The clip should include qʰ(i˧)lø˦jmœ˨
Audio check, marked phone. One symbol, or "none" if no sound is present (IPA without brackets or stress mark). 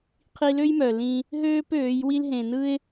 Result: i˧